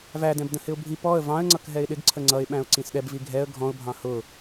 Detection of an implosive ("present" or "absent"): present